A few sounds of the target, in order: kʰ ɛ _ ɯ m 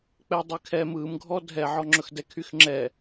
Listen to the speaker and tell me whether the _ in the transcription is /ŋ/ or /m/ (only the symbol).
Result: m